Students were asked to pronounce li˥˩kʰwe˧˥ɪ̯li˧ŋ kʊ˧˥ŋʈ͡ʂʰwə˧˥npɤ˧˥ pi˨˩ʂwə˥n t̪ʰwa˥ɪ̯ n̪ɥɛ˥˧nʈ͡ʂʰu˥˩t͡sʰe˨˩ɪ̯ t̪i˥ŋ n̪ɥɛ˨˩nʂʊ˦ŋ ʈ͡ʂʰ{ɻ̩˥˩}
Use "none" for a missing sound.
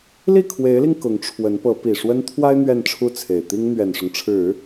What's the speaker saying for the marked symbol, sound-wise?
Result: ɻ̩˨˩˦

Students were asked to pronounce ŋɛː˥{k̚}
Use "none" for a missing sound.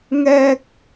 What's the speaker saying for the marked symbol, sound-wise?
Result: k̚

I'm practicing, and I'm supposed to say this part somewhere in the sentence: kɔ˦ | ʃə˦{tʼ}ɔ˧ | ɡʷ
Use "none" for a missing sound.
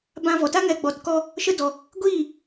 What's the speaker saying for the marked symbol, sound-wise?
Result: d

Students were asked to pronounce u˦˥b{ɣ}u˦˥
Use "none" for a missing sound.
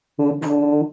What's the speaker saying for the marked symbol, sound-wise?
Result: ɣ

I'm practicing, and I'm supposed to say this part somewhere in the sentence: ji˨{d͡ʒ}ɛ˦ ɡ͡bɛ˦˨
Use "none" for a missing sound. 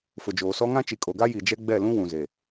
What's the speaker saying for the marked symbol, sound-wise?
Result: d͡ʒ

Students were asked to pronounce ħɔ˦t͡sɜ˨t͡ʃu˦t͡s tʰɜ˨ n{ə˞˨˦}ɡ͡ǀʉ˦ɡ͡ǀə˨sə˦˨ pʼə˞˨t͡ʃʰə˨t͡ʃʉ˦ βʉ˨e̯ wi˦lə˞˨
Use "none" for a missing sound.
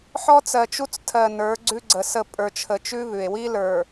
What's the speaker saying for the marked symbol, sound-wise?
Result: ə˞˨˦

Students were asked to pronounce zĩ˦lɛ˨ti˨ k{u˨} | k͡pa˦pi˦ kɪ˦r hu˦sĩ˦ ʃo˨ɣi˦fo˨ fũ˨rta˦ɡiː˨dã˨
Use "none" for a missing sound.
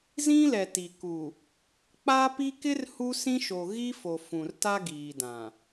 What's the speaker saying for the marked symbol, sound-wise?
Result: u˨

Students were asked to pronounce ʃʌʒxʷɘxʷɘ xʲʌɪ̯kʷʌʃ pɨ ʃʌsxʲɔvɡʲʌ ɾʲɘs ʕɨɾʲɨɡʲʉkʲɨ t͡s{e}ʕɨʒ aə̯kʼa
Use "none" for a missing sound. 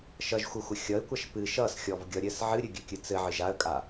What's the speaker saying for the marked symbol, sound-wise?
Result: ɘ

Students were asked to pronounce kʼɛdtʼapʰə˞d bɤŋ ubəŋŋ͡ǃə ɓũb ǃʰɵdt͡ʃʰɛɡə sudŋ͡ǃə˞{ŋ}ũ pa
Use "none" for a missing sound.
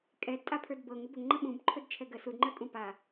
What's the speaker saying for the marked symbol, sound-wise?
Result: kʼ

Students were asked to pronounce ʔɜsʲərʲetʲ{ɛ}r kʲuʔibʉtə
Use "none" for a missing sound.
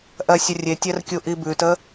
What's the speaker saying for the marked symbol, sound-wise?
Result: ɛ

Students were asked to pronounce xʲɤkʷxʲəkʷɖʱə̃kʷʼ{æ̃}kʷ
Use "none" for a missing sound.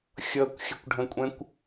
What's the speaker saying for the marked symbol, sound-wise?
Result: ɛ̃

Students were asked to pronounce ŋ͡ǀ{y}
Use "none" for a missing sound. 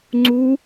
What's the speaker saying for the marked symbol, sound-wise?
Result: u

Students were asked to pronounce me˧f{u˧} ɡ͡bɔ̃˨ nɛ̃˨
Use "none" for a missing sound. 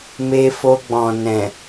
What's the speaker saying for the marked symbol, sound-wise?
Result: o˧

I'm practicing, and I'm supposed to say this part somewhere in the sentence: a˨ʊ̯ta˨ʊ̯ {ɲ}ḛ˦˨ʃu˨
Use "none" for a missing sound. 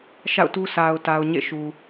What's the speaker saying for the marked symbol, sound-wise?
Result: ɲ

